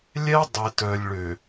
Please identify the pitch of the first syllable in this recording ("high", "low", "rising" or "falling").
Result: high